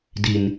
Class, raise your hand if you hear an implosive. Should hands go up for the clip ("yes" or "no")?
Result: no